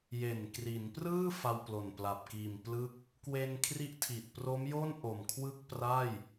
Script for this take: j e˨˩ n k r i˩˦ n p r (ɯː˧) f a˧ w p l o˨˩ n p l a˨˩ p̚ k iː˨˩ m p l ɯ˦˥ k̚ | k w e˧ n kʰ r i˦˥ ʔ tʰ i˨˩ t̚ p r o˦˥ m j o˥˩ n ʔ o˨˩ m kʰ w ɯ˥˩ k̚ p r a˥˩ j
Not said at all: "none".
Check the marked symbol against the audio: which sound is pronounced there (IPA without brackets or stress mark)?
ɯː˥˩